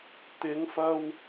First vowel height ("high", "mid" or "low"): high